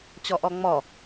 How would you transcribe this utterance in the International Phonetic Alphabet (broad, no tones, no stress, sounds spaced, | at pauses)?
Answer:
t͡ɕ ɔ ʔ ɔ ŋ͡m ɔ